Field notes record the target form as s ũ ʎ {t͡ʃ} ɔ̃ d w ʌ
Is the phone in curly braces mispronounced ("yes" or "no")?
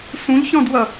yes